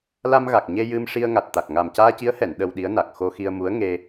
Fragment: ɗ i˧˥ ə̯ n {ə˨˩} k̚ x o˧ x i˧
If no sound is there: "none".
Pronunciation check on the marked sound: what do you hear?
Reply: a˨˩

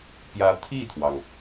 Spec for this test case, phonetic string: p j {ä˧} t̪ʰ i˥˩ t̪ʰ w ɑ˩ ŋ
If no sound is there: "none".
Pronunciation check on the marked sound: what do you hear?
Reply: ä˧˥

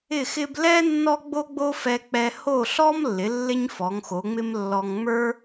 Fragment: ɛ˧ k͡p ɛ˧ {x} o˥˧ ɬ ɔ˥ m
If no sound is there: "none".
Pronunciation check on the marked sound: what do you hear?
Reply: h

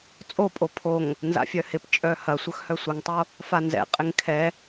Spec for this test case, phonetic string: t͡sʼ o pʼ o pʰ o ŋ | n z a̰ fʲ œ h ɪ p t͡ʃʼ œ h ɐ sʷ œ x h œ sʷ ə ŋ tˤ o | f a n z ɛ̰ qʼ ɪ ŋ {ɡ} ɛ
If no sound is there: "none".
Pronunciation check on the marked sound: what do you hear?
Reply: kʰ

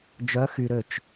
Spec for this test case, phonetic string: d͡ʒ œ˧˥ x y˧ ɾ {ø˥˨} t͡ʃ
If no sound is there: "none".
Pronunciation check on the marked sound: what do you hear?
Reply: ø˥˨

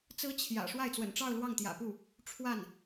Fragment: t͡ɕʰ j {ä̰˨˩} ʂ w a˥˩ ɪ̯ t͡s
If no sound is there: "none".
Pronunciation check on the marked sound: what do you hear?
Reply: ä̰˨˩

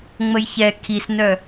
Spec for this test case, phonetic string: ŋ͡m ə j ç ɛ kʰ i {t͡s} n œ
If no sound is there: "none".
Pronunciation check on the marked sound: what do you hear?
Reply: s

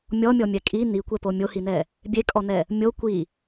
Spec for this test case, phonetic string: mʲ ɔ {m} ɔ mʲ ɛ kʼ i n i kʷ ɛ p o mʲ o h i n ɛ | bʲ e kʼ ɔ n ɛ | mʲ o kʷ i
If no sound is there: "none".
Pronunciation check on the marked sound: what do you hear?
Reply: mʲ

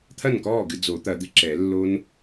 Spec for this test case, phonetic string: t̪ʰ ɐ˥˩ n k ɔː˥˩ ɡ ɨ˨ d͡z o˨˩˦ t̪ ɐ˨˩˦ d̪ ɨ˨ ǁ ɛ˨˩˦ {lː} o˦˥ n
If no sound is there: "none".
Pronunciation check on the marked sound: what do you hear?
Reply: lː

